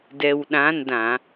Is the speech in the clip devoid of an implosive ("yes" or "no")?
no